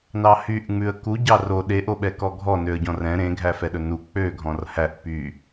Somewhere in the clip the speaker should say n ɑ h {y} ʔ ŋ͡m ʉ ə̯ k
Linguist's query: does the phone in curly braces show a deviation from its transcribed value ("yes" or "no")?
no